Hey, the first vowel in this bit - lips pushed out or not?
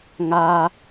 no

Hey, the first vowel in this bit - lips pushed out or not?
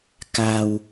no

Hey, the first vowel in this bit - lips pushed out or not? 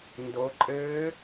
yes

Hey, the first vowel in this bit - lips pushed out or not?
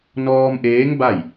yes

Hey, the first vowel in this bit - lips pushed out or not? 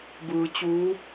no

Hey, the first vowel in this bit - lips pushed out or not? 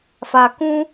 no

